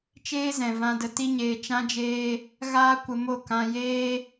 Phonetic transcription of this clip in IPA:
t͡ʃeː˦zɛ̃˨ vã˧də˧ ti˦ɲeː˧ t͡ʃã˦d͡ʒeː˦ | ɣaː˦kʷə˧mo˦˨ kã˧jeː˦

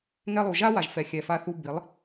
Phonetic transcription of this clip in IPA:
ŋɛ˧lˠu˨ ʒa˦wa˨ʒ fɛ˨xʲɛ˨fa˧θu˧ bi˨˦lˠ

